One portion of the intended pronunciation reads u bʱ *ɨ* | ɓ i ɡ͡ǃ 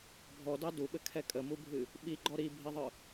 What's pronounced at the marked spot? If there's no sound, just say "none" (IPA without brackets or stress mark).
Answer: ɨ